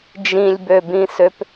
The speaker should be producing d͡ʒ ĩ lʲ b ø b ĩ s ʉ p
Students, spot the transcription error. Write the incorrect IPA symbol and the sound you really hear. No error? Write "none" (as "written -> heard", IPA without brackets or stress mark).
ʉ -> ø